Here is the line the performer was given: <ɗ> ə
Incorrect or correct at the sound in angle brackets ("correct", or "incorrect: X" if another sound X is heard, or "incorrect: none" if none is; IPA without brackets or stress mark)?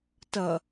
incorrect: t